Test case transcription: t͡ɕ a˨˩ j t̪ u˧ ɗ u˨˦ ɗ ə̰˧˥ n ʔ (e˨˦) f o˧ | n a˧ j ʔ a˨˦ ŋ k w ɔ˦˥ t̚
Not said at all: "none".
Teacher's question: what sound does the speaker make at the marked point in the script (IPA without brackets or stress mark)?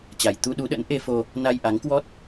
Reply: e˧